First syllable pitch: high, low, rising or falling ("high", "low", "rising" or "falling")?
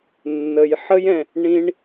low